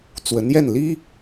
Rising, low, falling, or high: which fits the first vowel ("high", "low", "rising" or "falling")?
rising